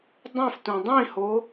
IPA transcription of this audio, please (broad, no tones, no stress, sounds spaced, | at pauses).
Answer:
dˤ ũ f t ũ dˤ ĩ h o